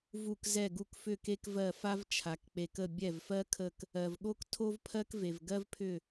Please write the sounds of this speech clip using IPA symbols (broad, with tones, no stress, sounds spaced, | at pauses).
v u˧˩ k z ɛ˧˩ ɡ u˧˩ k f ʏ˧˩ k e˦ k v ɜ˧˩ f a˦ v t͡ʃʰ a˩ k k͡p e˩ k ə˧˩ bʲ ɛ˧˩ v f ɜ˦ kʰ ə˧˩ k | ɜ˩ v ɠ o˦ k tʰ o˦ v pʰ ɜ˦ k v e˩ v ɡ ɜ˦ v pʰ ʏ˧˩